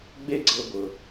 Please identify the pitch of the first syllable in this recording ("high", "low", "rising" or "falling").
high